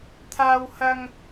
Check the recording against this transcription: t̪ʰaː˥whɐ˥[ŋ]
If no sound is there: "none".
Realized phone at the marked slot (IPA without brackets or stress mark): ŋ